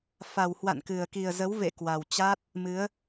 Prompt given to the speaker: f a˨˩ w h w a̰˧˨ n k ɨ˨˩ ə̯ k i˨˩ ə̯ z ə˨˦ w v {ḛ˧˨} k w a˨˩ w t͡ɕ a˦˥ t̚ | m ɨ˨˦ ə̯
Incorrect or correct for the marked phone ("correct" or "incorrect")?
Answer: correct